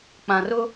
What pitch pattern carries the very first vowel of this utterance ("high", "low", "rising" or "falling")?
low